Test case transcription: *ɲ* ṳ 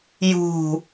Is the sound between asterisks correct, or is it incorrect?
incorrect